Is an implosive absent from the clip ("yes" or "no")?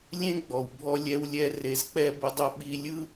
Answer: no